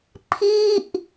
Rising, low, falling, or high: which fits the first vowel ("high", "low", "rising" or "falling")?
falling